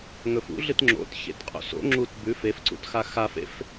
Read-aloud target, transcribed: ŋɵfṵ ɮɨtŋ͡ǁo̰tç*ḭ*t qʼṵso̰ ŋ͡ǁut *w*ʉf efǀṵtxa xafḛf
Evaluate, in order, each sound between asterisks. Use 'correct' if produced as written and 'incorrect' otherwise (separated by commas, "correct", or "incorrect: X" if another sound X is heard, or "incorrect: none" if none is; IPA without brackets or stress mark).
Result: incorrect: ḛ, incorrect: b